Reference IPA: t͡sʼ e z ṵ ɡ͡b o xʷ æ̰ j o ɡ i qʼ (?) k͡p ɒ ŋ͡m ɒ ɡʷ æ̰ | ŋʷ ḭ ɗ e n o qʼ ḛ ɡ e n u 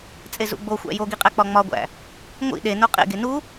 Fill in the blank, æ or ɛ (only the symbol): æ